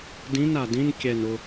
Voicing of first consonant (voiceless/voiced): voiced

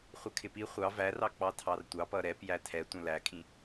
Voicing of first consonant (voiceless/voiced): voiceless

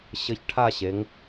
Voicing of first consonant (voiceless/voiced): voiceless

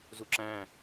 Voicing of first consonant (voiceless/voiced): voiced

